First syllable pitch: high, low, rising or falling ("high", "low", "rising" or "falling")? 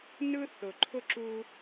high